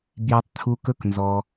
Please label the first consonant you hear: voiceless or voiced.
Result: voiced